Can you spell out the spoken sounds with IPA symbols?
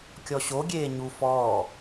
kʲ ɔ ɕ o ɡʲ eː ɲ u f ɔː

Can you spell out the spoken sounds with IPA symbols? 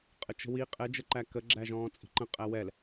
qʼ ə t͡ʃ ə̤ w i qʼ ɛ d͡ʒ ə ǃ æ k ə ɡ͡ǁ æ ʒ ɔ̃ː t͡sʼ i̤ ǃ ə̃ qʼ æ w ɛ l

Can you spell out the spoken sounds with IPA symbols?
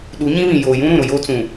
ɗ u˨˦ ɲ ĩ˦ β ĩ˨ j oː˨ j ũ˦ ɾ ũ˨ ɾ ʊ˨ j o˦ t͡s ũ˨

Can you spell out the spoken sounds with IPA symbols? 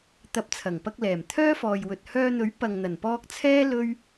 t̪ ɐ˨˥ p̚ t͡sʰ ɐ˨˩ ŋ p ɐ˧ k̚ l ɛː˨˩ m t̪ʰ œː˥ f ɔː˨ j w ɵ˨ t̚ h œː˧ n̪ ɵ˨˥ ɥ p ɐ˨ ŋ n̪ ɐ˨˩ n p ɔː˧ k̚ t͡sʰ ɛː˥ l ɵ˥ ɥ

